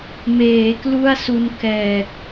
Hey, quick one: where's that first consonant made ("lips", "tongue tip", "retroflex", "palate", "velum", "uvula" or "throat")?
lips